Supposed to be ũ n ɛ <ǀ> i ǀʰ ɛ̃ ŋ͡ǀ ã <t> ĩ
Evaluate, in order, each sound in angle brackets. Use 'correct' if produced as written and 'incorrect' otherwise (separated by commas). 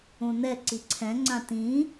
correct, correct